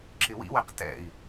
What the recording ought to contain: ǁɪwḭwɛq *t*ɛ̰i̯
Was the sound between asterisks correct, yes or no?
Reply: yes